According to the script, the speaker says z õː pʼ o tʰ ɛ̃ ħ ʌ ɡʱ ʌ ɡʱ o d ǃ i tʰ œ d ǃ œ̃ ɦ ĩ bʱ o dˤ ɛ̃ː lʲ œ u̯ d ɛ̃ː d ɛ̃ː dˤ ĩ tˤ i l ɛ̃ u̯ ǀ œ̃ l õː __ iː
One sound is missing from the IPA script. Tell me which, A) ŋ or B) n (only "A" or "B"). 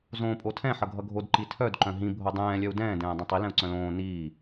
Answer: B